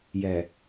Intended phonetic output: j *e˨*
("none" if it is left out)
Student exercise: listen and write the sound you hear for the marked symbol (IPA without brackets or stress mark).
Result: ɛ˨